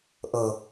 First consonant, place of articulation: glottal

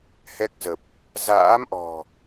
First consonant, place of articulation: glottal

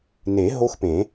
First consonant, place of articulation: alveolar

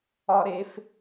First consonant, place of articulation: alveolar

